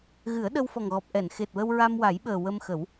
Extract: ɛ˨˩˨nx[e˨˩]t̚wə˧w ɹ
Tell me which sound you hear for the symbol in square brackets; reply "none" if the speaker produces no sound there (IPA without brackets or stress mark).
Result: e˨˩